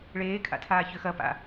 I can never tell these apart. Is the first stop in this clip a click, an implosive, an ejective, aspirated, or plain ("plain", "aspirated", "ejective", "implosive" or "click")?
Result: aspirated